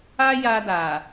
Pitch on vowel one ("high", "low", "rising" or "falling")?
high